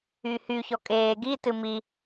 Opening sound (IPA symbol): y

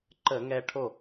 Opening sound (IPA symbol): ǃ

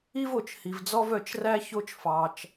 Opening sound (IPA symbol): i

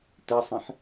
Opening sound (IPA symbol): t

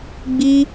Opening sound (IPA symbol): ɡ͡b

